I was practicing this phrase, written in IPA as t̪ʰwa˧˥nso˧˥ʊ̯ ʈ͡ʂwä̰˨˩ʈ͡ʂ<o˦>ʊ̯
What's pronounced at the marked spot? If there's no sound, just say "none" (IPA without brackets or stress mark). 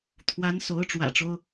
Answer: o˦